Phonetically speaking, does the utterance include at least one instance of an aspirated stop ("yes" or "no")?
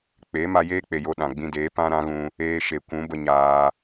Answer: no